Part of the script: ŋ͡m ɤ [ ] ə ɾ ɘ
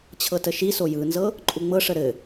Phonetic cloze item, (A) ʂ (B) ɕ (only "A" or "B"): A